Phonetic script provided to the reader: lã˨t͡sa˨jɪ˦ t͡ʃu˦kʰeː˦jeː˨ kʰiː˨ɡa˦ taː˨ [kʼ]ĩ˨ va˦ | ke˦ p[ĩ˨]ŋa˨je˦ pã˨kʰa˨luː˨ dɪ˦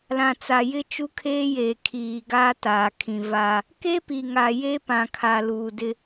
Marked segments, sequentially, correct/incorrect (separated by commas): incorrect, incorrect